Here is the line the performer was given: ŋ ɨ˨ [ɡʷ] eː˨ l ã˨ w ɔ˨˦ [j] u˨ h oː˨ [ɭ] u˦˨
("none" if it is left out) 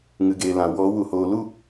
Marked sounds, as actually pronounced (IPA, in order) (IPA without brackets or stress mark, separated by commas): ɡ, w, l